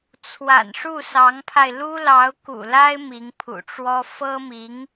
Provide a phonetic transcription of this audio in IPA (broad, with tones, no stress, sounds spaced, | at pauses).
t͡sʰ w a̰˨˩ n ʂ u˥˩ s ɑ˧˥ ŋ pʰ a˧ ɪ̯ l u˥ l ɑ˧˥ ʊ̯ k ṵ˨˩ l a˥ ɪ̯ m i˧˥ ŋ pʰ ṵ˨˩ ʈ͡ʂ w ɔ˥ f ɤ˥ m i˧˥ ŋ